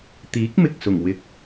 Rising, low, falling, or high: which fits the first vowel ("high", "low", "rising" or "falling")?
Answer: rising